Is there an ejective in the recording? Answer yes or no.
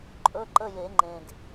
yes